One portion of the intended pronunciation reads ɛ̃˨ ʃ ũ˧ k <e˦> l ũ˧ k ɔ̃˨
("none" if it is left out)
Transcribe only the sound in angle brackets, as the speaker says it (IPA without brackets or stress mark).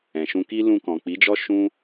i˦